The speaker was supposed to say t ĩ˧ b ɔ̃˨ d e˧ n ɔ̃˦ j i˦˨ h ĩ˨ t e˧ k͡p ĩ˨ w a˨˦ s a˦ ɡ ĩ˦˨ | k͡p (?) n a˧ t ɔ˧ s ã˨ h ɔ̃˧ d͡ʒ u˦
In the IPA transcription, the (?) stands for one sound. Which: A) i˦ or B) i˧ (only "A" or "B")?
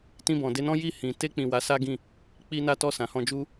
B